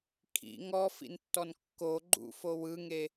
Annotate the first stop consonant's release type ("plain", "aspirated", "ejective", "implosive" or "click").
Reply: aspirated